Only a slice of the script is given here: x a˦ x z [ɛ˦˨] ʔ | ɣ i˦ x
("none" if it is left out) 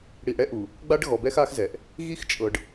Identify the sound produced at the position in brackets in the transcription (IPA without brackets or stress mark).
ɛ˨